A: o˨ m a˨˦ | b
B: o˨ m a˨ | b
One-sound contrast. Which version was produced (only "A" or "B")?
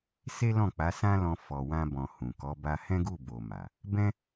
B